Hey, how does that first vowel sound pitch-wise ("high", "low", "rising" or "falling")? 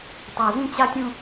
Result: low